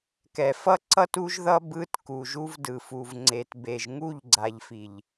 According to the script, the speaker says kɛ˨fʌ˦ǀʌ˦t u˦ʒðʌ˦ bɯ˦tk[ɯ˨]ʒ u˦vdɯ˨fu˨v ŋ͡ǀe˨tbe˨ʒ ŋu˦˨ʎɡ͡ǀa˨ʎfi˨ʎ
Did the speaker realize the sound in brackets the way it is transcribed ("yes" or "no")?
no